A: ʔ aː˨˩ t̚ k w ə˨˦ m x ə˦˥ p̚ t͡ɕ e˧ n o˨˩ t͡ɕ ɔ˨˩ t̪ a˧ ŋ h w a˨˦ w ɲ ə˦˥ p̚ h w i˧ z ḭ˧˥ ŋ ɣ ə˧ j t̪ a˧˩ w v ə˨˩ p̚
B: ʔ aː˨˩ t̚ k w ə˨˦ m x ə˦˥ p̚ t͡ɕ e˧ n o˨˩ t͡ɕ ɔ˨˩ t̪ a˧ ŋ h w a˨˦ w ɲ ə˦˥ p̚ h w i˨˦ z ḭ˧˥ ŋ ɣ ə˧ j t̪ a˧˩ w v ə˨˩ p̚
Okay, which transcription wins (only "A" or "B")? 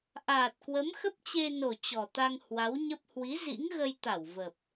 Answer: B